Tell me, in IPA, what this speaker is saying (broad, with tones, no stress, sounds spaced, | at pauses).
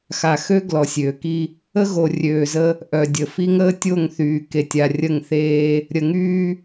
x a˨ x ø˦ ɡ l ɔ˨ sʲ øː˨ k i˦ | ə˦ ɣ o˨ rʲ øː˨ z ə˦ | ʔ œ˨ dʲ ə˨ f i˦ ŋ əː˦ tʲ o˦˨ ŋ θ yː˨ k e˨ tʲ a˨ rʲ ə˦˨ ŋ θ eː˦ | ɾʲ ə˨ ŋ yː˦